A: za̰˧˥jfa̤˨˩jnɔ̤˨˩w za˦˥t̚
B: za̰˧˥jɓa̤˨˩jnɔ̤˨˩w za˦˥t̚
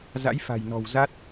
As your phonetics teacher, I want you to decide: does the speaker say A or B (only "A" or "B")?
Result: A